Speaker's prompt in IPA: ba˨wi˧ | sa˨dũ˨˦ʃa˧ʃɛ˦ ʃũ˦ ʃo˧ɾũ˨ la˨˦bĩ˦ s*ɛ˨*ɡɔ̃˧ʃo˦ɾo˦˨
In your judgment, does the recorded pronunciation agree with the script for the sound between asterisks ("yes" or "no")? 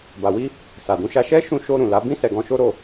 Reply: no